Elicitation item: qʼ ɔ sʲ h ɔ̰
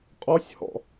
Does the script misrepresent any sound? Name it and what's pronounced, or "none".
none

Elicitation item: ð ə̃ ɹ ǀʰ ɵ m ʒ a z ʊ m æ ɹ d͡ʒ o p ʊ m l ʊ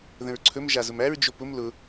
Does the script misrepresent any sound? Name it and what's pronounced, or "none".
none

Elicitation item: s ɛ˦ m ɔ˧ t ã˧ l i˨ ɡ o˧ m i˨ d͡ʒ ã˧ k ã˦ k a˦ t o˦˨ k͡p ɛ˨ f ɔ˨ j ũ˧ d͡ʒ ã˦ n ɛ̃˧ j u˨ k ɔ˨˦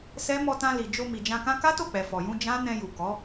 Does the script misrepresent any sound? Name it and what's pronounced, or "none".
ɡ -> d͡ʒ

